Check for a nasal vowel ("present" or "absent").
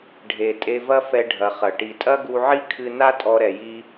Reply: absent